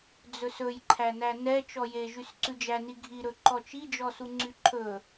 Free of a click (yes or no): no